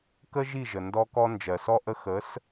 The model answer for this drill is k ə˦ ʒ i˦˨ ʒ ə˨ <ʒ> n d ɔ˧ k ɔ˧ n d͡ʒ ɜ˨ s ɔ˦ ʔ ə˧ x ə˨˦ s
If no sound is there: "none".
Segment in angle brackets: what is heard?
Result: none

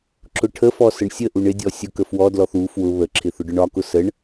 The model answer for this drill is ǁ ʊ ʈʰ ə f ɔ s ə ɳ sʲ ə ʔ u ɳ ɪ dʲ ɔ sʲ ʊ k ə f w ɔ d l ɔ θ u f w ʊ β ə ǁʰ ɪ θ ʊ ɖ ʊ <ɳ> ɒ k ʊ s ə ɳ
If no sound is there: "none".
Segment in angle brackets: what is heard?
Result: ɳ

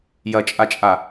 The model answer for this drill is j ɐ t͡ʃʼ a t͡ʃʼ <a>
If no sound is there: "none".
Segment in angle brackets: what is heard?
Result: a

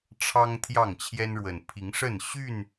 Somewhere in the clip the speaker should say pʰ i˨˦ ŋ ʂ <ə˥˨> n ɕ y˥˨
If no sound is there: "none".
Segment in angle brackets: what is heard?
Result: ə˥˨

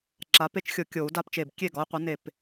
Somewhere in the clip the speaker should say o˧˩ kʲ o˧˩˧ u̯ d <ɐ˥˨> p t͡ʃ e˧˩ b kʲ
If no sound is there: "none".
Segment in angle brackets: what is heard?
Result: a˥˨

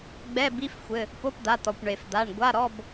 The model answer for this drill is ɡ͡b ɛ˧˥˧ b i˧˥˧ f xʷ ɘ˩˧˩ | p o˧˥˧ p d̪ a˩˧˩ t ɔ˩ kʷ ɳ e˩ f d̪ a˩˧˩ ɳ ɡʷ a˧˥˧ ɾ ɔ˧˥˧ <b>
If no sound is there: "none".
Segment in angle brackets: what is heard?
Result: b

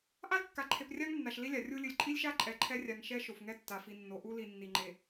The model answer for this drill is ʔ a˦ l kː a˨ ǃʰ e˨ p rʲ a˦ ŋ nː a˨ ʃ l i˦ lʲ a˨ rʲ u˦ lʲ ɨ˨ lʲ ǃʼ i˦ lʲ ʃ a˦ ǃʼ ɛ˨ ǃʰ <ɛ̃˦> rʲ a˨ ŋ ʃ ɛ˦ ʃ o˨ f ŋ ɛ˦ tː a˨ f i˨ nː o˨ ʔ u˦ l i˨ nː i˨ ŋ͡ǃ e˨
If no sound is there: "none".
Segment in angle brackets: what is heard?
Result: ɛ˦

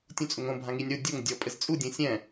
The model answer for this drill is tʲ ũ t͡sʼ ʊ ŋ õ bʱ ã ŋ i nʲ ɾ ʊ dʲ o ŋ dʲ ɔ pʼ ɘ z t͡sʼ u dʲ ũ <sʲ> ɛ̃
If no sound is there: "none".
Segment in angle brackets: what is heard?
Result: sʲ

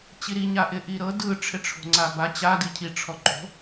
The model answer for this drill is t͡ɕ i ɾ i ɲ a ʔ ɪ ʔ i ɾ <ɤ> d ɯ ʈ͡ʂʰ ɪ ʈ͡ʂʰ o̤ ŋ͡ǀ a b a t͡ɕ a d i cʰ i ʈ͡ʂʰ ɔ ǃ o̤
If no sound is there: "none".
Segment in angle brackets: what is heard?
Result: ɤ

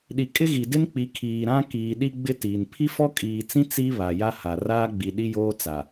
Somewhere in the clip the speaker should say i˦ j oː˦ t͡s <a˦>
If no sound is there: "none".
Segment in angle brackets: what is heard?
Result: a˨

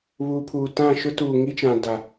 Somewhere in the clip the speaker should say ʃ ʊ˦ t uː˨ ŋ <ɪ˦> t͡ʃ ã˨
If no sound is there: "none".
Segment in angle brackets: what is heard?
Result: i˦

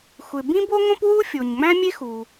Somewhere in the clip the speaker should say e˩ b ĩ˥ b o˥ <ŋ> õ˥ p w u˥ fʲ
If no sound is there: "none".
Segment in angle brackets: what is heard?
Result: ŋ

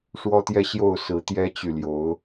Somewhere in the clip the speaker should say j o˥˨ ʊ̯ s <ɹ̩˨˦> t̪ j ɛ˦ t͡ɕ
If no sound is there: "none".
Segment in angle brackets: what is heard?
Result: ɹ̩˨˦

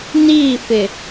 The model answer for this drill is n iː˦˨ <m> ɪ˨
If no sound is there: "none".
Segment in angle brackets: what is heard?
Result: f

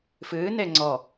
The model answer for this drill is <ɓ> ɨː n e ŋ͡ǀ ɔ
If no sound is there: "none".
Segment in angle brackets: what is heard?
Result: f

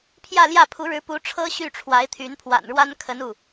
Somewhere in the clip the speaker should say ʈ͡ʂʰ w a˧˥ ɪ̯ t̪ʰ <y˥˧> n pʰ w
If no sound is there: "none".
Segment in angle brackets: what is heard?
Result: y˧˥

